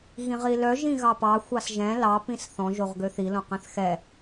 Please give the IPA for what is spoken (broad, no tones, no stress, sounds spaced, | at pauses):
ɣ ĩ ʁ i l œ ʒ ĩ ɣ ɑ p ɑ xʷ ɑ s ʒ ɛ̃ l ɑ p ĩ s θ ɔ̃ ʒ o ʁ ɡ ø θ i l õ q ɛ̃ θ x ɛ